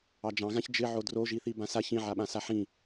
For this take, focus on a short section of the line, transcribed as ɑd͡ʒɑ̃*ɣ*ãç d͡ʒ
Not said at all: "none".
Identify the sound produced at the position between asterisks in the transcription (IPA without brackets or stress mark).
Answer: ɣ